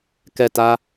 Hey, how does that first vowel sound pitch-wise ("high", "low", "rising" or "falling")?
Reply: falling